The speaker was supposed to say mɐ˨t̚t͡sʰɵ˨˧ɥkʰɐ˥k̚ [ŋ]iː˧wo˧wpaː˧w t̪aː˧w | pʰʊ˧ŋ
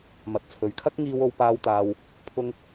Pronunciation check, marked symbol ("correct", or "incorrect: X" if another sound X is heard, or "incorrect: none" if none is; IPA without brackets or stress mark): correct